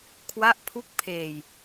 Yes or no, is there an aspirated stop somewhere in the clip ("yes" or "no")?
yes